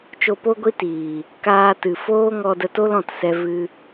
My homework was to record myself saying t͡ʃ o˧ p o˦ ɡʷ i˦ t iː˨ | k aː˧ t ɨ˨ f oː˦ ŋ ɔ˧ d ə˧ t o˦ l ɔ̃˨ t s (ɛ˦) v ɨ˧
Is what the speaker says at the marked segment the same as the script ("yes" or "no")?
no